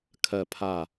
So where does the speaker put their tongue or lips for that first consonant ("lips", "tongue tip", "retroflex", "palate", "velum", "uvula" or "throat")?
velum